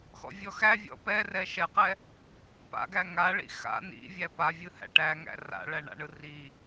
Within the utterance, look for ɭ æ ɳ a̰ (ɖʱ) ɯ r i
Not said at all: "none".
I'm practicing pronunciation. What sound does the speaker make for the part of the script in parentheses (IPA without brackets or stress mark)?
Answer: ɳ